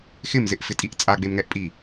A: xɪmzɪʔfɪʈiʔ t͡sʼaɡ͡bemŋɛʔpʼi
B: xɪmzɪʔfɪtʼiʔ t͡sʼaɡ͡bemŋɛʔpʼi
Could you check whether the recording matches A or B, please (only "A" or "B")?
B